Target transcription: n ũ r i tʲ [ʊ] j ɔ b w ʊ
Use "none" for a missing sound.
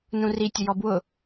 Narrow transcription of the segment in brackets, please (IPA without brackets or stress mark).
ʊ